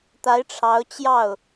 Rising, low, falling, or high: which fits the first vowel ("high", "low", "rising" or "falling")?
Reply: rising